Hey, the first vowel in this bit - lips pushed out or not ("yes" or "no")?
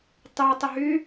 yes